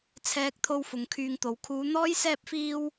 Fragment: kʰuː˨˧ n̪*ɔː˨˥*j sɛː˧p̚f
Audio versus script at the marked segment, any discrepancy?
yes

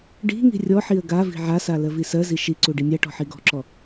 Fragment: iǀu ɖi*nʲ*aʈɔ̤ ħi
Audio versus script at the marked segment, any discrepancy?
no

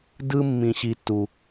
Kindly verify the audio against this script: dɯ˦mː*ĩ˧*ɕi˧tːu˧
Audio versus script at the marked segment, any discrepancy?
no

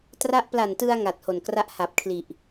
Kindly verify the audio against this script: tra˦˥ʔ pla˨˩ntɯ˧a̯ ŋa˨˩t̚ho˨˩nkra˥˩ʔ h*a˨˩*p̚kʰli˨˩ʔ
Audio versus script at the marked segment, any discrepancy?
no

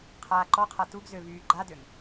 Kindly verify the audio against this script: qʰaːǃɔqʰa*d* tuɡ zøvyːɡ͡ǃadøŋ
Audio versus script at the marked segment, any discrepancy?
yes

